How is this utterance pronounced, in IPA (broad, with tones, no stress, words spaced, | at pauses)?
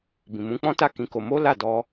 bĩ˨mũ˨˦k͡pɔ̃˦ta˦˨ kĩ˨˦ ko˧ mo˦la˦˨dɔ˧